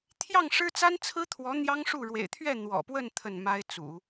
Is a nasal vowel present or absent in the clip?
absent